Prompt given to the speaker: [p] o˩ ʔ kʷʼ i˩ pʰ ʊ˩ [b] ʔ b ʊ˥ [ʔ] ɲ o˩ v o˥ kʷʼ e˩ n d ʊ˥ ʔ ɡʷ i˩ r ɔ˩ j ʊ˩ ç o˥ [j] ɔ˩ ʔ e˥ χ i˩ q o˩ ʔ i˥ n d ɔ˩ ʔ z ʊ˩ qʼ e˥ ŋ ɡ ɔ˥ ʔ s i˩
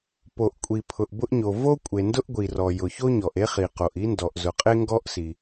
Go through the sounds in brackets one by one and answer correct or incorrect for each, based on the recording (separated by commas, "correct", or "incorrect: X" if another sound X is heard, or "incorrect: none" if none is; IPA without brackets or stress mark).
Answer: correct, incorrect: none, correct, incorrect: ɲ